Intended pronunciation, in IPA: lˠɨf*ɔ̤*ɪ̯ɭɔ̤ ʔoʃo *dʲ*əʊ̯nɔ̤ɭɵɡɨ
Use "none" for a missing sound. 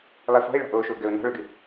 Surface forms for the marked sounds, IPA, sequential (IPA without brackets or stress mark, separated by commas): ɔ̤, ɡ